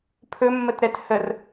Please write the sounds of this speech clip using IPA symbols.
pʰ ɵ mː ə t ɾ ɛ t h ə r

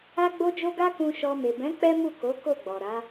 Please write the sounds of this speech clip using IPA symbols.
a˧ ɡ͡b o˧ d͡ʒ o˧ ɡ a˦ k ũ˧ ʃ ɔ˧ m e˨ b ɛ̃˨˦ k͡p ɛ˦ m u˦˨ k o˨˦ k o˦˨ ɡ͡b ɔ˨ ɾ a˨˦

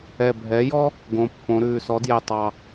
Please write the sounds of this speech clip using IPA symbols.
ɛ˨˩ bʱ ɛ˩˥ j ɔ˥ | ɡ õ˩˧ pː õ˩˧ ɾ ʉː˨˩ s ɔ˩˥ d j ɛ˨˩ tˤ ɑ˨˩

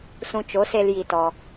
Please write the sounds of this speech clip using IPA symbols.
s ũ˧ t͡ʃ o˨˦ s e˧ l j i˧ t ɔ˧

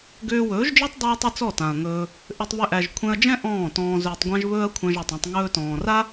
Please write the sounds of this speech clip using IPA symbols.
ɡ ʏː˧ w ɵː˨˦ ʒ d͡ʒ ɔ˦ tˤ dˤ ɛ˦ ɐ̯ tˤ ʏ˦ t͡s ɔ˦˨ t ã˨ ɐ̯ ŋ ɵː˧ | ʔ ʏ˧ tˤ β ʏ˧ ʔ æ˨ ʒ kʷʰ ɛ̃˧ ɐ̯ d͡ʒ ɛ̃˦ ʔ ɔ̃ː˦˨ t ɔ̃ː˧ z ʏː˧ tˤ ɡʷ æ̃˦ ʒ β ɵː˦ ɐ̯ kʷʰ æ̃˧ ʒ a˨ tˤ ã˧ tˤ ŋ ɵː˧ t ɔ̃ː˨ r a˦

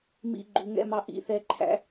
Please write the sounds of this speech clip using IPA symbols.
m ḭ˧ ɡ͡ǃ u˨ ŋ ɛ̰˦ m ɑ˧ ʔ ḭ˦ θ ɛ˧ ǃʰ æ̰˧

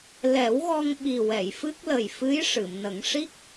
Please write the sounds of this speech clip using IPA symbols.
l ɛ˨˩˦ w ɣ ɔ˧ ŋ ɓ i˨˩ w ɛ˨˩˨ j f ɨ˦˥ k̚ l ə˨˩ j f ɨ˧˥ j ʂ ɨ˨˩˨ m n ə˨˩˦ ŋ ʂ i˦˥ k̚

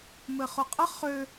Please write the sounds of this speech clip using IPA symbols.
m ɘ χ ʊ qʼ ə χ ø

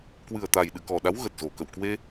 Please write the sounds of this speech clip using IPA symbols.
k w ɨ˨˩ ə̯ t̪ a˨˩ j ɗ ɨ̰˧˨ k ɔ˨˩ ɗ a˨˦ w ɣ ə˨˩ t̚ z o˨˩ k ə̰˧˨ w k w e˧

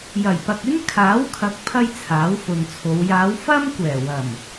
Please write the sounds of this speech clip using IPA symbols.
j ɐ˨˩ j p ɐ˨ k̚ ɪ˥ ŋ kʰ aː˨˥ w kʰ ɐ˨˥ k̚ pʰ ɐ˥ j t͡sʰ aː˨˥ w f ʊ˨ ŋ t͡sʰ o˨˧ w j aː˨˧ w f ɐ˥ m kʷ ɛː˨˩ w ɐ˨˩ m

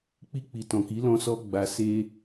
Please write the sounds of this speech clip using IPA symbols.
k͡p i˧ k͡p i˨ t ɔ̃˨ k i˨˦ l ɔ̃˧ s ɔ˧ ɡ͡b a˧ s e˧

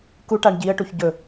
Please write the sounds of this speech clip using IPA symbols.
k u ʈ a ɳ ɟ i ə̯ ʈ u ç ɟ ɵ

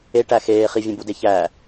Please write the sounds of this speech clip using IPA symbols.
e ʈ æ x eː χ i vʲ ẽ b u d e ç æ

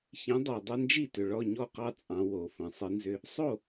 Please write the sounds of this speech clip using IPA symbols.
ç ĩ˨˥ dˤ o˨˩ dˤ e˦ n d͡ʒ i˥˩ t ʏ˨˩ ɭ ɔ˥˩ ɲ ɔ˥˩ q ɑ˦ t͡sʼ ɑ̃˩˧ w o˩˧ f ə̃˩˧ sˤ ɨ˨˥ n z ʏ˦ | sˤ o˥˩

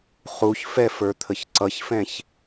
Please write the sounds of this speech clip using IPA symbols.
χ u ç f ɛ f ə˞ t̪ʰ ə ç ǀ ʌ ç f ɛ̃ ç

